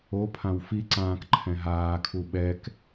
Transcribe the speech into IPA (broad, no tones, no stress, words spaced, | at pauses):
opʰãw fiǀãːk ǃʰɛ̃ɦaːkʰu ɓɛk